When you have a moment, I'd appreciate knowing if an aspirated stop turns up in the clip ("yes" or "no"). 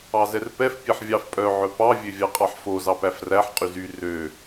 no